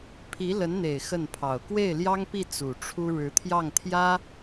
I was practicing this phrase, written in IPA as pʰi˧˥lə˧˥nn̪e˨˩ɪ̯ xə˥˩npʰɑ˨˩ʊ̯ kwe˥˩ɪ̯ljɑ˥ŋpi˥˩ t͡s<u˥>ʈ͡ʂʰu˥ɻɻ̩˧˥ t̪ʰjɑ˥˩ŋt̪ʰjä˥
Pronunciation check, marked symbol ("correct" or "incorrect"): incorrect